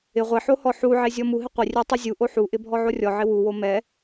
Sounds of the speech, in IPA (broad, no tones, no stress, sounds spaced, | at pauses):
ɪ ʁʷ e ħ o h ɔ ħ u ʕ e zʲ ɔ m u ɦ ɪ qʷ ɪ rʲ ɛ tˤ u zʲ u ʔ o ħ u ʔ ɪ bʱ ɔ ʕ o rʲ ɔ ʕ ɪ w u w o m ɛ